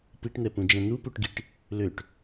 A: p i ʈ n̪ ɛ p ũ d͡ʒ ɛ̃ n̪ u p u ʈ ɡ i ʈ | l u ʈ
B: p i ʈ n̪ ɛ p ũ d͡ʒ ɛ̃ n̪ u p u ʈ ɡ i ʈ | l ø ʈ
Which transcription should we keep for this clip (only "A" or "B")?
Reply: B